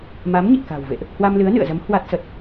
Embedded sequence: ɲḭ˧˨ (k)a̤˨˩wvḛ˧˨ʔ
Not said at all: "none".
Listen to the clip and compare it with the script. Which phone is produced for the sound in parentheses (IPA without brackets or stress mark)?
k